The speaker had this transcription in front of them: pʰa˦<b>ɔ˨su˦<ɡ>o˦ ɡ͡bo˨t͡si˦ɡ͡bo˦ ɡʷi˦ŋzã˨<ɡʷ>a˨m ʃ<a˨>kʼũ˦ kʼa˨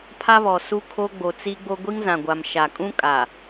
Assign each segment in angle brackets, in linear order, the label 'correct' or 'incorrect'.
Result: incorrect: β, incorrect: kʰ, correct, correct

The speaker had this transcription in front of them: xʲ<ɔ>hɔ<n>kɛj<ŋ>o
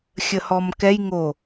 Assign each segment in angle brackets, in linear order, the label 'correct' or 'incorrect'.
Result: incorrect: ə, incorrect: m, correct

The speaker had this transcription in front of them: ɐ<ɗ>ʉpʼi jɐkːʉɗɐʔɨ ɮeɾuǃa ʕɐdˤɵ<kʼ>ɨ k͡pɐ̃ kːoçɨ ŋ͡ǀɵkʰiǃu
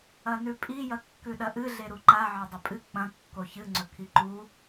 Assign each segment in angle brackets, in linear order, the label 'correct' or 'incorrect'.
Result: incorrect: n, incorrect: pʼ

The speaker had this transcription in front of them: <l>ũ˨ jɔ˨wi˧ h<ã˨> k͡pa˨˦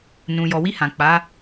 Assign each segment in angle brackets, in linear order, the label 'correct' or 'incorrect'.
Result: incorrect: n, correct

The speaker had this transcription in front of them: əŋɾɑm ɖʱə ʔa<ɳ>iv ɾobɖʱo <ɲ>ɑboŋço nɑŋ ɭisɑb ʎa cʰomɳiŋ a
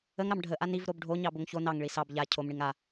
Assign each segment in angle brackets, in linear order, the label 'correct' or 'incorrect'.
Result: incorrect: n, correct

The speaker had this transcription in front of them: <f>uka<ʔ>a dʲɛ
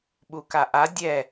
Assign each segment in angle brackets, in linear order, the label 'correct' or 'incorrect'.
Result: incorrect: ɓ, correct

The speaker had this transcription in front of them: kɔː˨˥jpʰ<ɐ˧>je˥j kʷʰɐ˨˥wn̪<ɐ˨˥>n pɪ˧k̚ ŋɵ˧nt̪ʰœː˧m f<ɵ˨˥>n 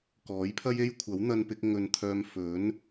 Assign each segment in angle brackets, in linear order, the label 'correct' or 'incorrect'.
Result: incorrect: ɐ˥, incorrect: ɐ˧, correct

